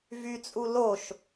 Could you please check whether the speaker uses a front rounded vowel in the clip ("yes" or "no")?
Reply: yes